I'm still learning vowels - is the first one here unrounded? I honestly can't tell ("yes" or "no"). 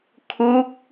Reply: no